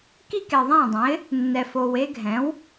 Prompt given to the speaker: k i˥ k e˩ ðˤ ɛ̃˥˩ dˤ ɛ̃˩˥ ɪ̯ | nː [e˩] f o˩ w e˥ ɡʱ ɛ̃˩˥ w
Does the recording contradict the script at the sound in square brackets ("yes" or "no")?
yes